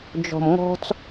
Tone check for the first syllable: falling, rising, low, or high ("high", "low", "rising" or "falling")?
low